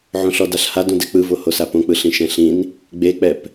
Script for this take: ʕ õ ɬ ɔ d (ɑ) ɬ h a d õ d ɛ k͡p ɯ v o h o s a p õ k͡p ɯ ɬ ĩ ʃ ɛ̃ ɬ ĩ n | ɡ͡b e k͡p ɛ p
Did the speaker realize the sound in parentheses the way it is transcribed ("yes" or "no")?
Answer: no